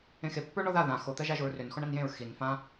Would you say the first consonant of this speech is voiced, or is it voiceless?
voiceless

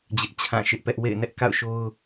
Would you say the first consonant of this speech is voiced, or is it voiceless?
voiced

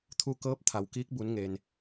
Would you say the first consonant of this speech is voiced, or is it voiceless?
voiceless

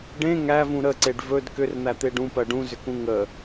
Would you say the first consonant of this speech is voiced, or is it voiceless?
voiced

